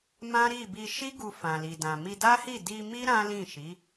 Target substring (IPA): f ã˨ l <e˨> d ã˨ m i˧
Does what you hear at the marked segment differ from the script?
yes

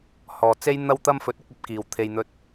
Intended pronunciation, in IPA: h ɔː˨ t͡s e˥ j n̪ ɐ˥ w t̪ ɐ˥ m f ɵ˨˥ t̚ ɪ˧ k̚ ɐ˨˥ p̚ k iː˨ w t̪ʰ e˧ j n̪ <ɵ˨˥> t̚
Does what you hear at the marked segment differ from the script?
yes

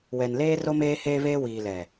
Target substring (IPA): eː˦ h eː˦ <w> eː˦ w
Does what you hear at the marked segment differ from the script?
yes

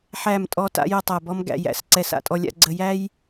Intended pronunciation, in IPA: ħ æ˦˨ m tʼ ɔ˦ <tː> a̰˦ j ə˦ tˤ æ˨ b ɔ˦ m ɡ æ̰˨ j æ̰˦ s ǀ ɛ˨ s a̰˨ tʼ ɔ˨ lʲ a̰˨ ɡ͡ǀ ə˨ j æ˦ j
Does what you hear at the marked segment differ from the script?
yes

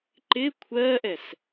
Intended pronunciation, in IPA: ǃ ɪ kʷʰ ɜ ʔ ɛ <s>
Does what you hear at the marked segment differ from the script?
no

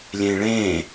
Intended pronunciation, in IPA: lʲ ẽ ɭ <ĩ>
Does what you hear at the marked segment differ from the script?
yes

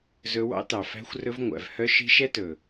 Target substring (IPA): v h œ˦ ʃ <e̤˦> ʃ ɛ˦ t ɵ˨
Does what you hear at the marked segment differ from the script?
yes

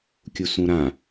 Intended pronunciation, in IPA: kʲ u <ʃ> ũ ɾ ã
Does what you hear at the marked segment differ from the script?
yes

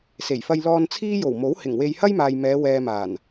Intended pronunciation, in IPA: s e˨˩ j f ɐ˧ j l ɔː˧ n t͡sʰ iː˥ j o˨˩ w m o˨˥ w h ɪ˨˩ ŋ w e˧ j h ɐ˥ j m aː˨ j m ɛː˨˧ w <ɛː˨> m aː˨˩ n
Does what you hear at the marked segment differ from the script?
no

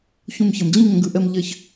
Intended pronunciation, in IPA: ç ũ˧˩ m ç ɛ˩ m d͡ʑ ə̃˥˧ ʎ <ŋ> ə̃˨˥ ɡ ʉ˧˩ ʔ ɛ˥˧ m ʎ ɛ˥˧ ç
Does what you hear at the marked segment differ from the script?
no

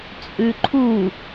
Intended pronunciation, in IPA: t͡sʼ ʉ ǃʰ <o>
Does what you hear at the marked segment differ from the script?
yes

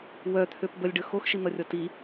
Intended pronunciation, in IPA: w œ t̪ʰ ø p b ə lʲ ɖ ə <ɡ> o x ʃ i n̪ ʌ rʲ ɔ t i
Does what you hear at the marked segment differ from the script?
yes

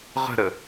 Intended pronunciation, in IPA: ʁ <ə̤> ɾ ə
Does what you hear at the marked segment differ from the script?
no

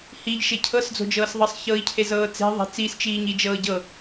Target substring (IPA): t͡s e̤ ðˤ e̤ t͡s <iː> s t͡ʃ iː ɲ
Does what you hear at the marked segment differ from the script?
no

